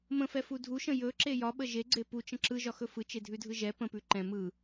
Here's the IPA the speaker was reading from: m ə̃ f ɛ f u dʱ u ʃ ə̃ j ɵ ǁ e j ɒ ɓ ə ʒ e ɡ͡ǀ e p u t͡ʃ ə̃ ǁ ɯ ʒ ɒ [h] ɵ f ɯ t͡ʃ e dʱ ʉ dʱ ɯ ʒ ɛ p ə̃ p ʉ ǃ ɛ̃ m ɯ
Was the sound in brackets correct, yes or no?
no